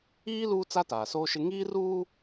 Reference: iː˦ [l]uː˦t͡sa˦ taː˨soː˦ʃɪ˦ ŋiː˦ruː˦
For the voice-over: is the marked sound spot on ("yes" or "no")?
yes